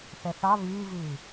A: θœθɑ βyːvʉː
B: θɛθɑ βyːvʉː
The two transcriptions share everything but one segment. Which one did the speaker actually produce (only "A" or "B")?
B